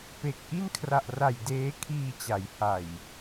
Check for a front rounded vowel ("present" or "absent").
absent